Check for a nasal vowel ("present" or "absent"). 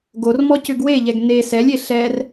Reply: absent